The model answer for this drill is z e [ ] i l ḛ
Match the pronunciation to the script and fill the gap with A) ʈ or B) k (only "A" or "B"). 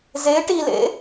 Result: A